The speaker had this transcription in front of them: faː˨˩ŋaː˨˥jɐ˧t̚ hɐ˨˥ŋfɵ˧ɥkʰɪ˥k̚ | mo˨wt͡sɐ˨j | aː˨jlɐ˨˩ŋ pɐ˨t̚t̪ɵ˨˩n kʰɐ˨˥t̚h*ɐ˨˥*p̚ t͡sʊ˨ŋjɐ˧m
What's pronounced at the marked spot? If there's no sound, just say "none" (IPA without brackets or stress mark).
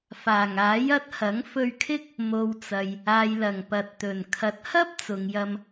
ɐ˥